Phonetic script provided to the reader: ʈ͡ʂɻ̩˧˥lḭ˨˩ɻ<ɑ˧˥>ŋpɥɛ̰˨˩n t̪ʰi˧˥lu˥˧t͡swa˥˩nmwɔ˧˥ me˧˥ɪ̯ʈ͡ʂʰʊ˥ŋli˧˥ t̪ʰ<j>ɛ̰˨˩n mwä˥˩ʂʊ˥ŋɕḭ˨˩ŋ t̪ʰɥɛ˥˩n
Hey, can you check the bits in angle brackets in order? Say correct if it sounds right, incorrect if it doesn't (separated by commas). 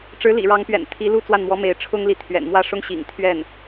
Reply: correct, incorrect